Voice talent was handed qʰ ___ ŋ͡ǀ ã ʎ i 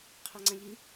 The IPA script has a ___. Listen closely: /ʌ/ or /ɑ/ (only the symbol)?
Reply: ɑ